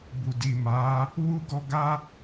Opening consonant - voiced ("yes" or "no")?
yes